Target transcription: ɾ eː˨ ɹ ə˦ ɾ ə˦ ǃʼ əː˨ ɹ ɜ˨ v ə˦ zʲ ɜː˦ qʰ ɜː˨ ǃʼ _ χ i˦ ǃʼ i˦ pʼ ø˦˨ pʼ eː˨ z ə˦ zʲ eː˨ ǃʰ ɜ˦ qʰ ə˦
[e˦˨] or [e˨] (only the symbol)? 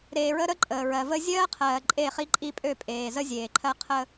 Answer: e˦˨